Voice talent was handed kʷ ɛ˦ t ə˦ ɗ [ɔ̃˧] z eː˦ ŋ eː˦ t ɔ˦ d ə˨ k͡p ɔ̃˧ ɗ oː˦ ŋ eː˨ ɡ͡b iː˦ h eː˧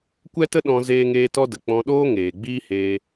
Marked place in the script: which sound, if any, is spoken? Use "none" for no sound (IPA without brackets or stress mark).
ɔ̃˧